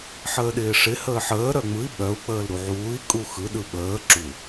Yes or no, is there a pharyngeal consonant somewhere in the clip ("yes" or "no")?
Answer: yes